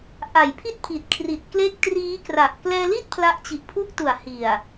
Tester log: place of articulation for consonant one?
glottal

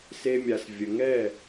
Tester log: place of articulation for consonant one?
alveolar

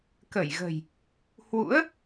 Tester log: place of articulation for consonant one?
velar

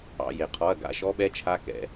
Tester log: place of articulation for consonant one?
palatal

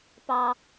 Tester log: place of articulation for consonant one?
labial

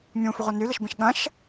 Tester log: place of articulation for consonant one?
labial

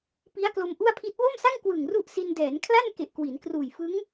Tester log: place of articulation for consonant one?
labial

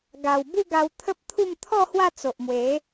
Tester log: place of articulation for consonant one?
velar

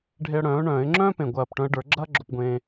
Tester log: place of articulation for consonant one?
retroflex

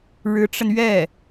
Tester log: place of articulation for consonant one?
retroflex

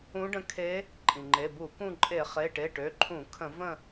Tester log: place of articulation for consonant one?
retroflex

